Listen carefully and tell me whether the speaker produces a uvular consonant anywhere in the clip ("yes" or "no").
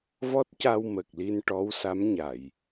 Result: no